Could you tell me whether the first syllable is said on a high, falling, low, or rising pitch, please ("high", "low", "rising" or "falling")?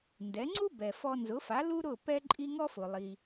rising